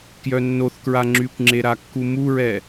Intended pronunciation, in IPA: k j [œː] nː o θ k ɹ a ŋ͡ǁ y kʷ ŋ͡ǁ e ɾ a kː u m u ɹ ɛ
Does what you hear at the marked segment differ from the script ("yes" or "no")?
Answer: yes